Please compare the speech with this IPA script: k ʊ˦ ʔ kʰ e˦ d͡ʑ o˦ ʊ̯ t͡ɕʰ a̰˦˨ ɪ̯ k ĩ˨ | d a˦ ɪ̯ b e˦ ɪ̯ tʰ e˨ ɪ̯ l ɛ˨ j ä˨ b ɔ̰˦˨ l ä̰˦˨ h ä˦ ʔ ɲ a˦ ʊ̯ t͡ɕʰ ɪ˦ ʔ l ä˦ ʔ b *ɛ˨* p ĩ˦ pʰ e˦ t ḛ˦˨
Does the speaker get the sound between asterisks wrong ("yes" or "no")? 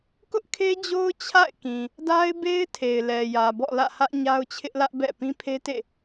yes